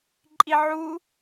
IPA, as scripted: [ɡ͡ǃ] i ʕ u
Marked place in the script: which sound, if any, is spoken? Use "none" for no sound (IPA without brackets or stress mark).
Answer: ǃʼ